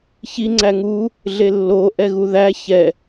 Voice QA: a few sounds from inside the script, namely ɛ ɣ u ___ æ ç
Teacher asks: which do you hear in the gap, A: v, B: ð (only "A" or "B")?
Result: B